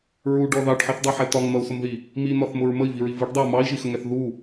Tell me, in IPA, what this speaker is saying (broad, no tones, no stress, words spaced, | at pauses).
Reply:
ɹuɖɔ ðɑɖħiθdˤɛħɛ tɒŋn̪ʌu̯sʊmði | min̪ɒθmʊɹ məi̯viɹi viɖdˤɛu̯ mɑi̯ʒixəŋɛθ ðu